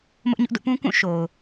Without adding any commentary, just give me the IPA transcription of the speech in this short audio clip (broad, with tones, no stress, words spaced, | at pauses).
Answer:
mʊ˦ʔɲʊ˦ʔdʊ˦ʔ pũ˦kũ˦˨ ʃo˨ʊ̯